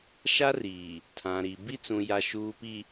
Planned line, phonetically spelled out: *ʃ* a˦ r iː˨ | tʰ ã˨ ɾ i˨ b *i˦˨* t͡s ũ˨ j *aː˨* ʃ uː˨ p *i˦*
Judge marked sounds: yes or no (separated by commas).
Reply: yes, yes, no, no